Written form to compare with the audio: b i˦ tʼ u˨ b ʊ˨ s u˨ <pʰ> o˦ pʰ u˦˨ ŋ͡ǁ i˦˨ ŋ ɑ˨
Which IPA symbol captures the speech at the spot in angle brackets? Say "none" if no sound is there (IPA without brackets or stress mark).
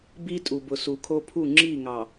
kʰ